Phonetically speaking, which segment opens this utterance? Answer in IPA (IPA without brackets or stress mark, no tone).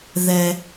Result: ð